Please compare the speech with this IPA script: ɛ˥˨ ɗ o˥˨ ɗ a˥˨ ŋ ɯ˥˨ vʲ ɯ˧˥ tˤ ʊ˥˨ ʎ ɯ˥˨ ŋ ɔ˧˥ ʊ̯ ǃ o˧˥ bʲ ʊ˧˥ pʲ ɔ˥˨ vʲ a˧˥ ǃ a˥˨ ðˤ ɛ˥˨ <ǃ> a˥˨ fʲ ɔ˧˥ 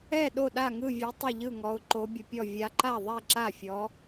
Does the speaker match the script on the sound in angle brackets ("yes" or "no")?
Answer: no